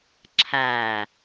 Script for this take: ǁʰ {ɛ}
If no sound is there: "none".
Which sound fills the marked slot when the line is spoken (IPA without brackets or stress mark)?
æ